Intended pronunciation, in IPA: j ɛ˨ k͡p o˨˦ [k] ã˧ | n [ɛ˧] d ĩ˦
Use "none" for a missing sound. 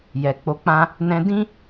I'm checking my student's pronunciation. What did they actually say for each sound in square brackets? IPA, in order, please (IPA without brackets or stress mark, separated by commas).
k͡p, ɛ̃˧